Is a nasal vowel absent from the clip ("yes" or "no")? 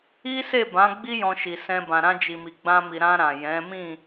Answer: no